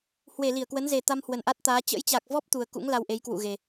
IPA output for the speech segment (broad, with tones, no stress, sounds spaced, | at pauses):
h w e˧˩ l i˧˩ ə̯ k w ə˨˦ n z e˨˩ t̪ a˧ m h w ə˨˩ n ʔ a˦˥ t̚ t̪ aː˨˦ t͡ɕ ə̰˧˥ j t͡ɕ a˨˩ k̚ v ɔ˦˥ p̚ t̪ u˨˩ ə̯ k ṵ˧˥ ŋ l a˧ w ʔ e˨˦ j k w ṵ˧˨ ɣ e˨˩